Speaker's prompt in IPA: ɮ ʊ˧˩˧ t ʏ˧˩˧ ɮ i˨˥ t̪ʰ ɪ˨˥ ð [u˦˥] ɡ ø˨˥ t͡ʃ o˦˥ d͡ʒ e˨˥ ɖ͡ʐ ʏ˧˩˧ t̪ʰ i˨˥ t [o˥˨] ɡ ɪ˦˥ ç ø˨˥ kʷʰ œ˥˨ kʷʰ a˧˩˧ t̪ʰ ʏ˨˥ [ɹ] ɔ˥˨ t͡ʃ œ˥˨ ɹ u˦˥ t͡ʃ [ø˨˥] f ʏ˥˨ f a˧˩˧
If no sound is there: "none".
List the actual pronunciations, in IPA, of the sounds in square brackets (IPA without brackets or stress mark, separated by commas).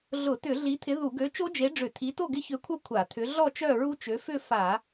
u˧˩˧, o˥˨, ɮ, ø˨˥